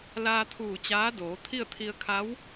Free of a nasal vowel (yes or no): yes